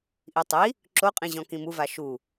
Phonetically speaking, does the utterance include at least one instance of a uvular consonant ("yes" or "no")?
yes